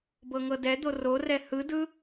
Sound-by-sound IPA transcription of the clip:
bɤŋɤdɛd̪o rorɛ hɯdɯ

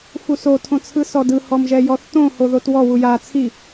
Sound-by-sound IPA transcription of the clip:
fusotʰõ t͡sʰɯsɔdɯhɔm ʒɛjɔθtõho ðotwɔwu ja t͡sʰi

